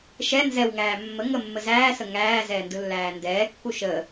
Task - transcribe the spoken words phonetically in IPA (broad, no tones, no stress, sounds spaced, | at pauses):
ʃ ɛ n z ɛ w ŋ æː mː ə ŋ ə mː ə z æː s ə ŋ æː z ɛː n d ɯ lː æː n d ɛː kː u ʃ ə